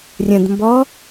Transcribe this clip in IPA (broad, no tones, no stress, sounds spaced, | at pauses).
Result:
rʲ ə̃ d m b ɔ